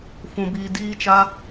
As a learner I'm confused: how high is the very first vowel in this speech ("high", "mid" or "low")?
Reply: high